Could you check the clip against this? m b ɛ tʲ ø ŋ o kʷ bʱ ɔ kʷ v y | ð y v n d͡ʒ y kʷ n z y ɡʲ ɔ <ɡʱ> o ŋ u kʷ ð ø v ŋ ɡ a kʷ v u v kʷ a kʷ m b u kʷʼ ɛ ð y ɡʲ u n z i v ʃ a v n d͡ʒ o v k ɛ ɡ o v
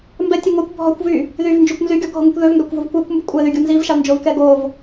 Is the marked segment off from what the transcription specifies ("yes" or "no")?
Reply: no